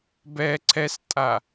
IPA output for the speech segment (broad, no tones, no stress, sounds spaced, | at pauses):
b ɛ ǀʰ ɛ s tʼ a